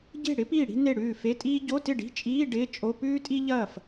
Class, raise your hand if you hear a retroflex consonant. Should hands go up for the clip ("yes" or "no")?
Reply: yes